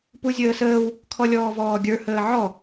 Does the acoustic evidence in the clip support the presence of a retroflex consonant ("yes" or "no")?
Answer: no